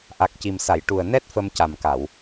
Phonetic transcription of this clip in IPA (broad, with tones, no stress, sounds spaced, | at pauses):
ʔ a˨˩ k̚ c i˨˩ m s a˨˩˨ j ʈ u˨˩ ə̯ n ɛ˦˥ t̚ f ə˧ m c a˨˩ m k a˨˩˨ w